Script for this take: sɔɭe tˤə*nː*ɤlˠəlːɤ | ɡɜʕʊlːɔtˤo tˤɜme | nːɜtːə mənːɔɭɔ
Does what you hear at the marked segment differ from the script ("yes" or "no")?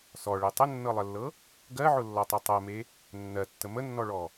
no